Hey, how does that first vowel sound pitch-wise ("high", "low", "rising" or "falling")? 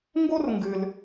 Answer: high